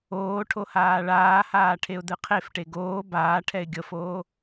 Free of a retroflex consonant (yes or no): no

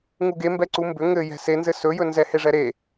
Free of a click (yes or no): no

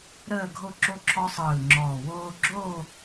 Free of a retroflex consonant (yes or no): yes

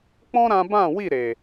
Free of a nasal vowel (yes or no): no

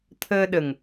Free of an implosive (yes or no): no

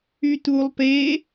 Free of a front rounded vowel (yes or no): no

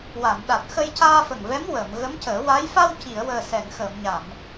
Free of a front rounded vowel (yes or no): yes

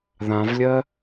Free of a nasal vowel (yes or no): no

